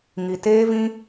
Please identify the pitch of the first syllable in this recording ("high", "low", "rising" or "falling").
low